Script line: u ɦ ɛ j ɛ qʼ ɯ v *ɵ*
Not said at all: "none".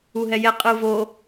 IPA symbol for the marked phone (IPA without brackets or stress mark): o